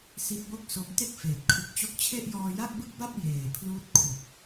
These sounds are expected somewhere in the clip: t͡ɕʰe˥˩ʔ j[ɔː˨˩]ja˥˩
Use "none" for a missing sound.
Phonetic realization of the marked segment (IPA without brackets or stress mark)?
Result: ɔː˧